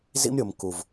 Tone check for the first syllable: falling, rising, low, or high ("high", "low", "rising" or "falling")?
high